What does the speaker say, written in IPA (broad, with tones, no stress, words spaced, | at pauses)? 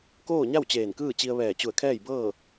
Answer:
koː˥˨ɲa˥˨w t͡ɕeː˧˩nkɯː˥˨ t͡ɕi˧ə̯ʋɛː˧˩t͡ɕu˧˩ə̯kʰɛː˥˨j bɤː˥˨